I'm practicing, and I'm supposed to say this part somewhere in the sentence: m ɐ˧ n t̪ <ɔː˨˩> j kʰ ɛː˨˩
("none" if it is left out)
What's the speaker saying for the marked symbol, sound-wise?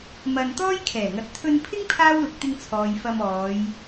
ɔː˥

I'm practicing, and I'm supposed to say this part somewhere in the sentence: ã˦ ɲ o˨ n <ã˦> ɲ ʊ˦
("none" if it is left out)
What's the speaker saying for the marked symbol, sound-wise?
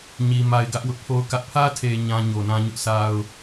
ã˦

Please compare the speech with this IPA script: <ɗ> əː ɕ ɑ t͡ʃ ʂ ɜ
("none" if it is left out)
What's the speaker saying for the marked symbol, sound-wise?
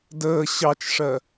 d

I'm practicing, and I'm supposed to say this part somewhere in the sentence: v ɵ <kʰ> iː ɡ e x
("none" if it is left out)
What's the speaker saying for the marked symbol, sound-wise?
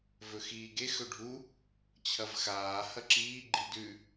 x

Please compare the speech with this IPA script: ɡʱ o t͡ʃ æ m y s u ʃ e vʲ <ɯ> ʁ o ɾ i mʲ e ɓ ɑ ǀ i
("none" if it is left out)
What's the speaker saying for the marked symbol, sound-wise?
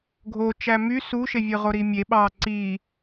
ɯ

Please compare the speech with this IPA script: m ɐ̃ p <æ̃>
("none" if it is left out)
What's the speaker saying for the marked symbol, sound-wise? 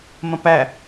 æ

